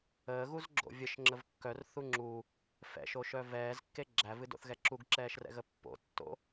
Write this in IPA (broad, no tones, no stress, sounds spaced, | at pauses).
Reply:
əː ɣ u z ɡ͡ǁ o̰ vʲ ə ʃ ŋ͡ǁ ə v kː œ r θ u ŋ͡ǁ u | f ɛ̰ ʃ o ʃ œ v ɛː z kː e ɡ͡ǁ æ v ɨ d o̰ θ ɣ ɛ ǁ u ɡ ǁ ɛː ʃ r ɛ̰ ɣ ə pː o̰ tː o̰